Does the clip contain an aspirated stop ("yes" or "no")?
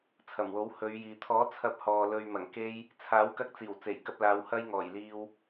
yes